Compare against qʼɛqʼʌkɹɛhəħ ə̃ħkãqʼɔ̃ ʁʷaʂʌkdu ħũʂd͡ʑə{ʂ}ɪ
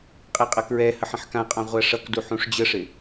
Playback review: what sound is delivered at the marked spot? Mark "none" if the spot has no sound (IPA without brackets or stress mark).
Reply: ʂ